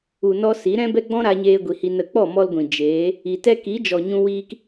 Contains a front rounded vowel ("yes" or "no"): no